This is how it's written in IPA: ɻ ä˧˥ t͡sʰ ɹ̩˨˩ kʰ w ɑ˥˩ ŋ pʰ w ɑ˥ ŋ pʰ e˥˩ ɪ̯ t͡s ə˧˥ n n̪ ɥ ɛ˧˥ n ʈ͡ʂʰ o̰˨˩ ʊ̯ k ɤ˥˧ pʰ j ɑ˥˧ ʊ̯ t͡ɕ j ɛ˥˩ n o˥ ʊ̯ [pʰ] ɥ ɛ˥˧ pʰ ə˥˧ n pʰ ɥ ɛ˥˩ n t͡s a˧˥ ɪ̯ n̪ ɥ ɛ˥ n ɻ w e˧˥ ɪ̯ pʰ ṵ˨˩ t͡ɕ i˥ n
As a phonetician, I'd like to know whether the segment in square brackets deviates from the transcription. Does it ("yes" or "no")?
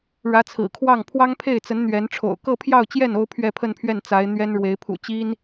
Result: no